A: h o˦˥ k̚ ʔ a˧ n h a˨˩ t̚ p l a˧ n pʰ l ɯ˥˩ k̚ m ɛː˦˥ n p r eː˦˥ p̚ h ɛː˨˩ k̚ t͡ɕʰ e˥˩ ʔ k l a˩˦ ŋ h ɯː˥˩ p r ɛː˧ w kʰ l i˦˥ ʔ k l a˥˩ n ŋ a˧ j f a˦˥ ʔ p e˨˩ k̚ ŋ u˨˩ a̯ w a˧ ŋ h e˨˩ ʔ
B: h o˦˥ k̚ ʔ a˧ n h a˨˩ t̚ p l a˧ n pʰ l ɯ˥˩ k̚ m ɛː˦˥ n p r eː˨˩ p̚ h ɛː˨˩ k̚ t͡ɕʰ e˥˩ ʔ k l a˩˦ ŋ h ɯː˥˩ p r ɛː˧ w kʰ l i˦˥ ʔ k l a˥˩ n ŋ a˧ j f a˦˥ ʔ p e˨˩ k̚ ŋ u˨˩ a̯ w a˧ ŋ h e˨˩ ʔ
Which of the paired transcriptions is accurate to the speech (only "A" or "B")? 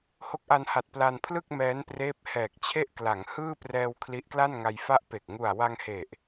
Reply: A